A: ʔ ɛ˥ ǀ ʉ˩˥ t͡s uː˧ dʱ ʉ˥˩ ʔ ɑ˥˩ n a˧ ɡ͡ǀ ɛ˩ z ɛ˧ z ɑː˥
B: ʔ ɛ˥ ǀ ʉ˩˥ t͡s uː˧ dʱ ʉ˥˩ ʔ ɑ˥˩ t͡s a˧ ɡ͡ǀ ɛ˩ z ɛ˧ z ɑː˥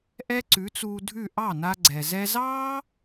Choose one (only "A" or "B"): A